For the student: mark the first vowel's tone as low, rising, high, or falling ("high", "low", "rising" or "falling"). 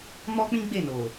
high